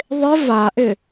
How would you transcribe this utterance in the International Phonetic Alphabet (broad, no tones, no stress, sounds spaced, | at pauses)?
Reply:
ðˤ ɪ v a ʔ ɪ